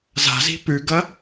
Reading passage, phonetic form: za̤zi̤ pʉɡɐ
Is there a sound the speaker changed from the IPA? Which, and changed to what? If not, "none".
none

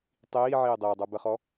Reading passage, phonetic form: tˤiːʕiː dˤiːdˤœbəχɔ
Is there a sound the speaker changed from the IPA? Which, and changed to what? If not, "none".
none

